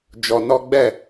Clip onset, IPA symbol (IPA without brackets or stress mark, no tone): d͡ʒ